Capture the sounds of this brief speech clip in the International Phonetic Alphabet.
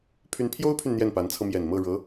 pʰy˧˥npʰjo˥ʊ̯pʰy˨n n̪jɛ˥˩npa˧˥nt͡sʰɤ˧ mjɛ˨˩nmɤ˥˩ ɻɤ˧˥

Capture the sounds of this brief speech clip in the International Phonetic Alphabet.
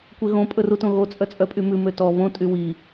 kʷeɣõ pʼɵrutõɣo t͡sʼœt͡sʼœpʼymʉ møtɔ βõ tʼywi

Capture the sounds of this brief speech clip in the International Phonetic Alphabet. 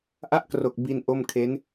ʔa˦˥ʔkro˨˩k̚ bi˧n ʔo˥˩mkʰe˦˥n

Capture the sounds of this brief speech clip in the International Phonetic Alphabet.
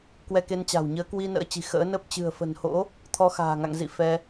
kwɛ˧ke˧nt͡ɕa̤˨˩w ɲəː˨˦kwi˧ nə̰ː˧˥t͡ɕi̤˨˩ xə̰ː˧˥nə˦˥p̚ t͡ɕɨ̤˨˩ə̯fə̤˨˩nho̰˧˥ | t̪ʰɔ˧xa̤ː˨˩ŋa̰˧˨ŋzḭ˧˨ fɛ˧

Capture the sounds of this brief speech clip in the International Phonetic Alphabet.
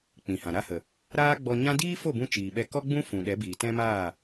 k͡pĩ˨hã˨ ɾa˧hə˨ | ɾaː˦ɡ͡bɔ˧ɲã˦ diː˦fo˦˨bũ˧ t͡ʃiː˨ɓɛ˧ kɔ˦ɡ͡bũ˦ fũ˨ɗɛ˨˦ biː˨tɛ̃˦maː˦˨

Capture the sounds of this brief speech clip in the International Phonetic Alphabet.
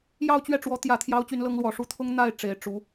jɑ˥˧ʊ̯t͡ɕɥɛ˥˩ʈ͡ʂwɔ˧˥ t̪jä˨˩t̪ʰjɑ˧˥ʊ̯ t͡ɕy˧˥nlɤ˧˥ŋlwɔ˨˩ʂu˥ t̪ʰʊ˥ŋ n̪a˥˩ɪ̯ ʈ͡ʂe˨˩ɪ̯ ʈ͡ʂu˧˥

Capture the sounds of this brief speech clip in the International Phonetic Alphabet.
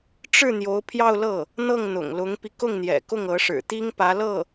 ʈ͡ʂɻ̩˥˩ n̪jo˧˥ʊ̯pʰjɑ˥˧ʊ̯lɤ˥˩ | n̪ɤ˥˩ŋn̪ʊ̰˨˩ŋlʊ˧˥ŋpi˧ kʊ˥˩ŋn̪jɛ̰˨˩ kʊ˥˩ŋɤ˧˥ʂɻ̩˨˩t̪i˥ŋ pä˧˥lɤ˥˩

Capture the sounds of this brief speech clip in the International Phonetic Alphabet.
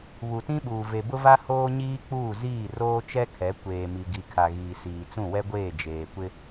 βu˨tĩ˦ɓuː˨ ve˨bʊ˦va˦ hoː˦ɲiː˦k͡puː˦˨ ziː˦˨roː˦t͡ʃɛ˦kʰɛ˨˦ kʷeː˨mi˨ ɡi˨kʰa˨ɣiː˨siː˨ t͡sũ˦˨wɛ˦ɡʷeː˦˨ d͡ʒeː˨kʷɪ˦

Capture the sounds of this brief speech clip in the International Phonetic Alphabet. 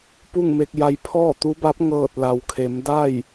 pu˥˨ŋme˧k̚ja˧j pʰɔː˥˨t̪u˧˥ba˧˥p̚ ŋɤː˧˩t̚la˩wkʰe˩˧mda˥˨j

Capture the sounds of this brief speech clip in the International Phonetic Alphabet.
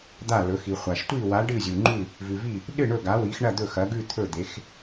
d̪a˧˩lɵ˩˧ xi˩χʷa˩ʃ tʷi˧˩wa˩˧ ɖɨ˧˩zʲu˩ŋ͡ǃʉ˧˩ | vʉ˩vi˧˩ | ɗɨ˧˩ ɳɵ˧˩ɡa˩˧wi˩˧xɳɐ˧˩ d̪ɵ˧˩xɐ˩˧ɡʉ˧˩ t̪ʰɵ˧˩d̪e˩˧x

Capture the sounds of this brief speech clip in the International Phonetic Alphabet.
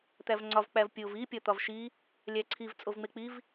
t̪ævŋ͡ǀɒv k͡pævpʲov i pʲɒt̪ɒvʃi | lʲæǀʰiv t͡sʼovŋ͡mek͡piv

